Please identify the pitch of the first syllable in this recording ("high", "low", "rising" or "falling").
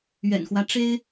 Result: low